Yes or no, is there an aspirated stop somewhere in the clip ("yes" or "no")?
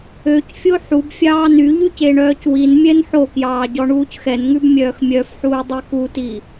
no